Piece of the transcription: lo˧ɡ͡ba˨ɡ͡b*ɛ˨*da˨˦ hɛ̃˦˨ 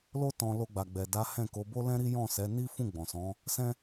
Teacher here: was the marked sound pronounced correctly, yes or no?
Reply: yes